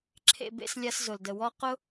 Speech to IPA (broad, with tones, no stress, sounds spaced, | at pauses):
ǁʰ ḛ˨ b ḛ˧ s lʲ a˧ s z ʊ˨ l d ə˨ w ɔ˦ q ʊ˦